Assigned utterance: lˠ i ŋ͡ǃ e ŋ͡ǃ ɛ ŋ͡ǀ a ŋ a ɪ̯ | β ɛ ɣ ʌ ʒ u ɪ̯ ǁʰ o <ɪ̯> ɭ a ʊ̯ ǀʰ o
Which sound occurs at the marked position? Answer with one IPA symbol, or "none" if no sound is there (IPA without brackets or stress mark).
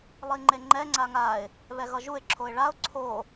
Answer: ɪ̯